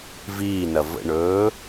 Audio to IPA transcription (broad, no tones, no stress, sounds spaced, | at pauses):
v iː n ɐ v ə̰ ɳ ɵː